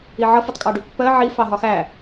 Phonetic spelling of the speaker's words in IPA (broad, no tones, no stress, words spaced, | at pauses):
iʕʌ fʊtˤkʼɑɖupːɜ ʕi fɑɦɒxæ